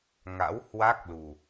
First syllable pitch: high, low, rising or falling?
rising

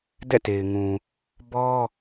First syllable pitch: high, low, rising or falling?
falling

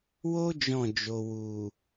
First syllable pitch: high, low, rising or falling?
high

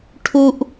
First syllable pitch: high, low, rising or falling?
high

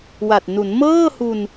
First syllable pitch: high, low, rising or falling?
low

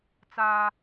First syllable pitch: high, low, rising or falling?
high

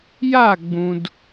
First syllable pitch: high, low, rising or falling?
falling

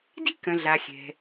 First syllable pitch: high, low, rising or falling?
high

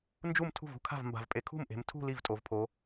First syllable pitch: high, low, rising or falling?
falling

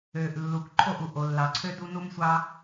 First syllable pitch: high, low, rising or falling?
low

